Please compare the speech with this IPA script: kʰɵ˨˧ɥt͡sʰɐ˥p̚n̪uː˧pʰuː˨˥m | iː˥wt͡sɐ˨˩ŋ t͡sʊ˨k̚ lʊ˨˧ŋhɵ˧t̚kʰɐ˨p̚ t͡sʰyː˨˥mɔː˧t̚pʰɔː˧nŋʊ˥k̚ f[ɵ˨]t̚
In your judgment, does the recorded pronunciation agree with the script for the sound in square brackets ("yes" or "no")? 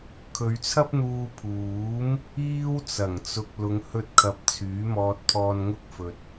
yes